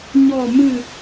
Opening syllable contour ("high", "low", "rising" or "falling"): falling